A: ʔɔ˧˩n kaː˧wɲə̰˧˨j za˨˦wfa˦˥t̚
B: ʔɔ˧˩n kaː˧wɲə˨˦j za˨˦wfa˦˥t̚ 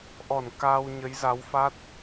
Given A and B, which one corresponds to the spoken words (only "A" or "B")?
B